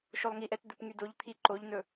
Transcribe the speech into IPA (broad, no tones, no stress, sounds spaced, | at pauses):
ʃ o lˠ ŋ i ʔ ɛ t d̪ ɵ p ŋ y d o ʎ t̪ʰ i ǃ o ʎ n ɵ